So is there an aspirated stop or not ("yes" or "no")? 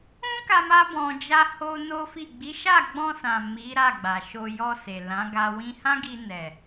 no